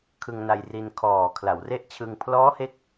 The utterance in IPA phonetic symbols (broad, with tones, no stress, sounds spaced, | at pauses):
kʰ ɯ˧ ŋ n a˧ j r i˧ n kʰ ɔː˨˩ kʰ l a˩˦ w r e˦˥ ʔ t͡ɕʰ ɯ˧ ŋ pʰ l ɔː˦˥ h e˥˩ k̚